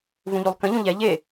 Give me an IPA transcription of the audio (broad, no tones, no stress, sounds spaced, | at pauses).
v ũ ʎ u lˠ k ə̃ ʎ ũ ʎ ɛ ʎ e